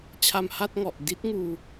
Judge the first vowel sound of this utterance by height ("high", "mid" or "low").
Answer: low